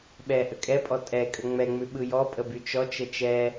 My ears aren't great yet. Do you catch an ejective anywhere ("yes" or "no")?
yes